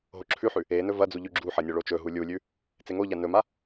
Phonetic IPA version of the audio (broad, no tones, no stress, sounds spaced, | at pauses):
ɦ o ǁʰ ʉ ħ ʉ | e n ɵ v ɐ d͡z u ʎ ʉ ɡ͡ǁ u ħ ɐ nʲ o ɭ o t͡ʃ ɵ ɦ u lʲ u lʲ ʉ | t͡s e ŋ o ʎ a n ɵ m a